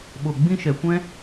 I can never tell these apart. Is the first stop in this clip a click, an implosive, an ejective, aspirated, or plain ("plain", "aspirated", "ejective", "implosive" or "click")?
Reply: implosive